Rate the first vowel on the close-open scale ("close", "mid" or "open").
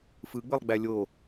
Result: close